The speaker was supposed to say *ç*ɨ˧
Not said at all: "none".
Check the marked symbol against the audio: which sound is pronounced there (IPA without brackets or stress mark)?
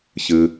ç